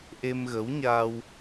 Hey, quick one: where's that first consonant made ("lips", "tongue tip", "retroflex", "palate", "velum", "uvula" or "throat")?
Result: throat